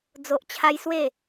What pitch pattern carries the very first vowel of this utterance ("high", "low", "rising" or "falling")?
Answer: low